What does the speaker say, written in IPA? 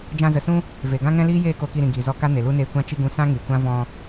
d͡ʒ ã˧ z ə˨ s ũ˦ | v e˨ ɡ ã˦ ŋ ɛ̃˦ l iː˦ j eː˦˨ k o˧ k i˧ ɾ ĩ˨ ɡ iː˨ z ɔ˧ k a˦ n e˨ l u˦ n eː˧ kʷ ã˧ t͡ʃ i˧ ɡ ũ˧ s ã˦ ŋ i˨ kʷ ã˦ v ɔ̃˧

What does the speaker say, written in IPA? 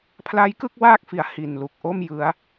pʰ l a˦˥ j k ɯ˥˩ k̚ w aː˥˩ k̚ f i˩˦ a̯ h i˨˩ n l u˨˩ k̚ ʔ o˥˩ m j ɯ˦˥ a̯

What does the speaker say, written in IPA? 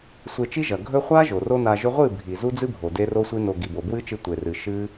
sʷ e˧ t͡ʃ i˦ ʒ ɐ˨ ɡʱ ɵ˦ χʷ a˦ ʒ o˨ r o˦ n a˧ ʒ ɵ˦ ʁʷ ɨ˦˨ bʱ i˨ z u˦ d͡z ɨ˦ bʱ o˨ d e˦ r o˦ sʷ i˦ n o˧ ɡ i˨ b o˨ b w ɨ˦ t͡ʃ ɨ˧ tʷ e˨ r ɨ˨ ʃ ɨ˦

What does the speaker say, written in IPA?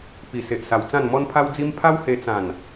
p i˨˩ s e˨ ʔ s a˨˩ w t͡s ã˥˧ n m ɔ˦ n pʰ a˦ w d͡z i˦ m pʰ a˦ w h e˧ t͡s ã˨˩ n

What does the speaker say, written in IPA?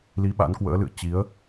l i˨˦ ɓ a̰˧˥ n k w ə̰ː˧˥ l ɨ̰˧˨ ə̯ t͡ɕ i˨˦ ə̯

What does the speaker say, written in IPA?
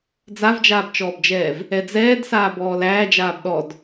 d͡z a v d͡ʒ aː b t͡ʃ ɔː b d͡ʒ ɛː v | ɛ d͡z ɛː d s aː b ɔː l æː d͡ʒ aː b ɗ ɔ d

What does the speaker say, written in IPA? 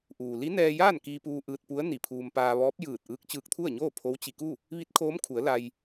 ʔ uː˩ l i˧˥ n ɛː˧ j aː˥˨ n k iː˧ p uː˧ ʔ ɯː˧ t̚ p u˧˥ ə̯ n i˧˩ pʰ uː˧ m p aː˧ ʋ ɔː˧˥ p̚ j ɯː˧˩ t̚ ʔ ɯː˧˥ k̚ t͡ɕ ɯː˧ k̚ t̪ʰ u˥˨ ə̯ ɲ oː˥˨ pʰ o˧˥ w t͡ɕ i˧ k u˥˨ | ʋ i˧˥ t̚ kʰ oː˧˥ m kʰ u˩˧ ə̯ l a˧ j

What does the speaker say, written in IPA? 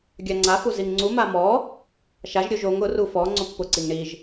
ɡʲ a ŋ͡ǀ a f u z i ŋ ŋ͡ǀ u m a m ɔ | ʃ a ʒ ɾʲ o ʒ o ŋ ʊ r u f ɔ ŋ͡ǀ o pː ʊ ǀ i ŋ ɳ i ʒ

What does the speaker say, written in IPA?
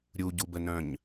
ɾʲ u ɟ u b ə n œ̃ ɲ

